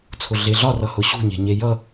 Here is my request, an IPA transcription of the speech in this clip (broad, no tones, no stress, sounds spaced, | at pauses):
t͡sʰ ʊ ɮ e ɮ ɒ r ʌ h ʊ ɕ ṳ ɲ e̤ ɲ e j ʌ